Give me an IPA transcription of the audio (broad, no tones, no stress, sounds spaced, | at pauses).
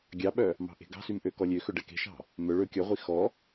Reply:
ɡʲ ɑ ɓ œ | m ɑ̤ ʔ e̤ ɡ ɑ̤ s y m ʔ ø k ɔ lʲ ø x ɵ ɖ ɛ k e̤ ʃ ɑ̤ | m œ ɭ ɵ kʲ ɔ ʁʷ i x ɔ